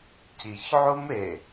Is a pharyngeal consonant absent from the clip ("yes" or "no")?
no